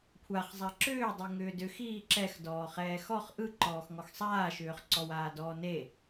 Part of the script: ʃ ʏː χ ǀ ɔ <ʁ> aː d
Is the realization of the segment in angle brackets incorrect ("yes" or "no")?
yes